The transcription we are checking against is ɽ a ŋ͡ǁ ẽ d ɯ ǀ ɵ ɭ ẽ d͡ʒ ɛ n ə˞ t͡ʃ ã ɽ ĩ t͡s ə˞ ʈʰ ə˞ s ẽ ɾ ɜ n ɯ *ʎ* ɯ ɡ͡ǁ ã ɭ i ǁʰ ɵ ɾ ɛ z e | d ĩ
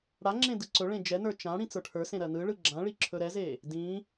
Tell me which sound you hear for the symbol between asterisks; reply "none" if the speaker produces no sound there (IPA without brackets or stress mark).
ɭ